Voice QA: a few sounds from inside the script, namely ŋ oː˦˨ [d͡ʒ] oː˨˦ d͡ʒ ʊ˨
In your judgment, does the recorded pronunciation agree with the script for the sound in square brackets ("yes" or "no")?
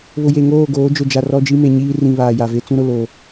no